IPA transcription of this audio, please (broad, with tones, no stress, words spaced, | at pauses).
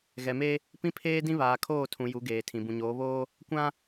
ɣɛ˨me˦ | pĩ˦pʰeː˦dĩ˦ βaː˨kʰoː˦˨tʰũ˨ ju˨˦ ɡeː˨tʰĩ˨ bũ˨ɲoː˨˦βoː˦ | kʷã˦